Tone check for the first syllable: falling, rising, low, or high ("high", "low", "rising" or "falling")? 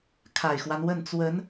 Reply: low